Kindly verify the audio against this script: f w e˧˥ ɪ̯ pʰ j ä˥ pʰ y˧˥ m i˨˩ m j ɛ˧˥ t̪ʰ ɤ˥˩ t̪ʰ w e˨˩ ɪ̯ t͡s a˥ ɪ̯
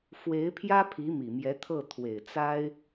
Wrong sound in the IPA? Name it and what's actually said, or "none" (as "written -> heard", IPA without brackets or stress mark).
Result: y˧˥ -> i˧˥